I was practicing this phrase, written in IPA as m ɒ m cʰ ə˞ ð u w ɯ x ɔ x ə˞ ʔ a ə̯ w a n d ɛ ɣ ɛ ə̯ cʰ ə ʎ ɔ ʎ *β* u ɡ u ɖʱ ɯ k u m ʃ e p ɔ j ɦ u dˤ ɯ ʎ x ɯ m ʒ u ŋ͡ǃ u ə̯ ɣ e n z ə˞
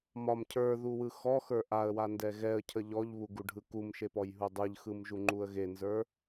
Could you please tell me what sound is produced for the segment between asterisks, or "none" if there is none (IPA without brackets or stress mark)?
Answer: β